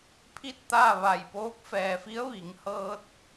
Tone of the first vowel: falling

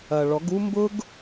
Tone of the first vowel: low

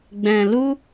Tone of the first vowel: low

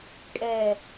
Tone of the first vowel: falling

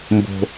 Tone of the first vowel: low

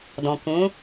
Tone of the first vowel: low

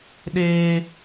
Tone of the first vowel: high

